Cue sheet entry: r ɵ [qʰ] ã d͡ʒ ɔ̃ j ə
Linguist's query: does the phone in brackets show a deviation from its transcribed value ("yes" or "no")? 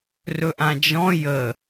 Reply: yes